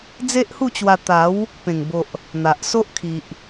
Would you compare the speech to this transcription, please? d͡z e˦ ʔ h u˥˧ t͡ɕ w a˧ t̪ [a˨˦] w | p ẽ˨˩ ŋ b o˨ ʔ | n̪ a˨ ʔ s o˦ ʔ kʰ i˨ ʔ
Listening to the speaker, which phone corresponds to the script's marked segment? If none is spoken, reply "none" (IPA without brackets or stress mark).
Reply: a˨˦